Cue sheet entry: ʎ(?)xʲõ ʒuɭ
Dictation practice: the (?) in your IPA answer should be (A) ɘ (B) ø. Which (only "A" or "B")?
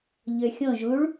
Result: B